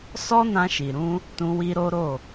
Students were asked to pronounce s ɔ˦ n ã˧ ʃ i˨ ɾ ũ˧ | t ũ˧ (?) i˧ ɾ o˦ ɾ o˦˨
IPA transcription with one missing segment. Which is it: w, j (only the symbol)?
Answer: w